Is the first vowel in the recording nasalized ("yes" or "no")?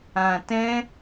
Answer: yes